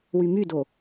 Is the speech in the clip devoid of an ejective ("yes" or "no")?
yes